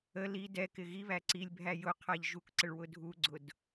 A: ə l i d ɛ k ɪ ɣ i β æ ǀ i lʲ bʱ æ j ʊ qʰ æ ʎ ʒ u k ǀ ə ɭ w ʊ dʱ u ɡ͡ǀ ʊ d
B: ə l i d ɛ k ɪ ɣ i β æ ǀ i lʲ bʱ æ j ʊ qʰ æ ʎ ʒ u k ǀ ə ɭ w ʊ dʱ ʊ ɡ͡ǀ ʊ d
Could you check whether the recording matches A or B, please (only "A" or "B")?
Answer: A